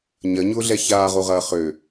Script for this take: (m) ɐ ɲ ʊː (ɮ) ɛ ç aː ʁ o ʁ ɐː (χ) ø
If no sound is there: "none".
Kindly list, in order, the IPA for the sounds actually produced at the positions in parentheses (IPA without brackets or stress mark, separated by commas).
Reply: ɲ, ɮ, χ